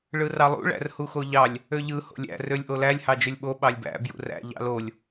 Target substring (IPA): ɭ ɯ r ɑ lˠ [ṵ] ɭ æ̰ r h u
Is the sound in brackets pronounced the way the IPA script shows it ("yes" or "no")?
yes